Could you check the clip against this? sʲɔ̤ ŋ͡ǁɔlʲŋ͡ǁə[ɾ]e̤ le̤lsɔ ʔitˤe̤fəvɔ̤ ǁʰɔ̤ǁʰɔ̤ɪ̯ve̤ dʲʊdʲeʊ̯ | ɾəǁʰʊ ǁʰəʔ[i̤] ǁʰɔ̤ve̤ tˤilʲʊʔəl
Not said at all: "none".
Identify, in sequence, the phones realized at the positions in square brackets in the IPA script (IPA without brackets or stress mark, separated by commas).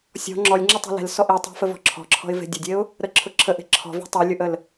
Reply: tˤ, e̤